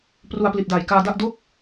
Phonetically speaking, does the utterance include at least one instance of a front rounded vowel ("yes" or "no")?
no